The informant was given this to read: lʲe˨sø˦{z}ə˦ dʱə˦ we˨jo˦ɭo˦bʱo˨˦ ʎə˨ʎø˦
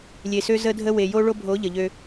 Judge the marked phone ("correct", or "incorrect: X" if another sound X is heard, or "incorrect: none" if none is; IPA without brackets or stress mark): correct